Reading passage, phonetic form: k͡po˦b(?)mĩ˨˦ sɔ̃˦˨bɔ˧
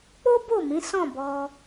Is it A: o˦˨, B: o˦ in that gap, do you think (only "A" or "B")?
A